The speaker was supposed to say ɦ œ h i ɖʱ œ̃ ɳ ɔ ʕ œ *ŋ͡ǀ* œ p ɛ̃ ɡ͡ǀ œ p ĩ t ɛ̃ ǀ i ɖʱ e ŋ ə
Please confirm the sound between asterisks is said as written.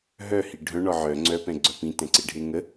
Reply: yes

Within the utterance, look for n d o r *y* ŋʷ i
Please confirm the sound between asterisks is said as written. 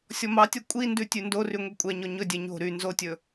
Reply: yes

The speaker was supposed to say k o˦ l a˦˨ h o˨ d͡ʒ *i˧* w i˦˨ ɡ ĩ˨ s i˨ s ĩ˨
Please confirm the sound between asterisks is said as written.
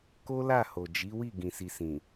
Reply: no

